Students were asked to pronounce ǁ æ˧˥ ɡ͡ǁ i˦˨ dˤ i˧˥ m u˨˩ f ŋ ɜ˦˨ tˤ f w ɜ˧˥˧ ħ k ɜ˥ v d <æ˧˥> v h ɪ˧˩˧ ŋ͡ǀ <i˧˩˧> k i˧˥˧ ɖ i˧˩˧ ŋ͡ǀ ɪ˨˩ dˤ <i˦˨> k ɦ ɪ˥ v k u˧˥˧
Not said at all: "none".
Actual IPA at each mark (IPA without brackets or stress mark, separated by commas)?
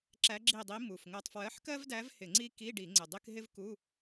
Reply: æ˧˥, i˥, i˧˥˧